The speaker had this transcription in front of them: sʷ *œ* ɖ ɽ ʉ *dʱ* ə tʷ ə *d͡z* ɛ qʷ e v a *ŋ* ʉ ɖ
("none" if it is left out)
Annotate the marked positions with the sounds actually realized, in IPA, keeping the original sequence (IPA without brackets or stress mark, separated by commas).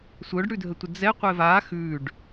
œ, dʱ, d͡z, x